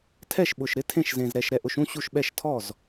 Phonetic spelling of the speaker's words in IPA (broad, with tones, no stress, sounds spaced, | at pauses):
tʰ ɛ˥˩ ʃ ɓ ʊ˨˩ ʃ ɾ ɪ˧˥ tʰ ẽ˥˩ ʃ z ẽ˨˩ z ɾ ɛ˨˩ ʃ ɾ ɛ˨˩ ʔ ʊ˥˩ ʃ ũ˥˩ ɕ u˥˩ ʃ ɓ ɛ˥˩ ʃ tʰ ɔ˥˩ z